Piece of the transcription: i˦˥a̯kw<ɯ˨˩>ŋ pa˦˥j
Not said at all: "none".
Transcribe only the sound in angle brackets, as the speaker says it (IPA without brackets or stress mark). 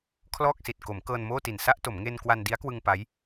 ɯ˧